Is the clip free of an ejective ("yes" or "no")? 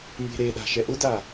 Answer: yes